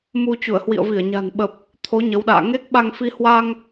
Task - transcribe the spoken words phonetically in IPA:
mu˧ t͡ɕu˧˩ə̯hwḭ˧˨ə̯vi˧˩ə̯ ɲa̤˨˩nɓə˨˩p̚ | t̪ʰo˨˦ ɲə˨˦wɗa̰ː˧˨ ŋe˦˥k̚ɓa˧ŋfi˧ hwa˧ŋ

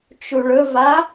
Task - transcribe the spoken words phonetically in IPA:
t͡ʃuɭɵva

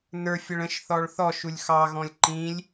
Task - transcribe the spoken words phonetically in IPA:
nə˞fʲəɭ ə̃ʃθɔɭ θɔ ʃulʲxɑɣɔ̃lʲ ǃĩlʲ

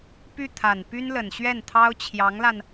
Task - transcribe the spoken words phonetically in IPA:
py˥˩t̪ʰa˨˩n py˥nlə˨˩nɕɥɛ˥˩nt̪ʰɑ˥ʊ̯ t͡ɕʰjɑ˧˥ŋla˧n

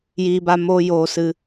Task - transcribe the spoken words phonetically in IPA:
jiː˧ba˧ moː˧ joː˧sɨ˧

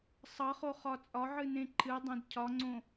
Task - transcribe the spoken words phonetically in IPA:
sˤʌχo χɒt͡sʼɒʕɨ nẽǃʰɨdˤẽd cʰɒŋ͡ǀõ

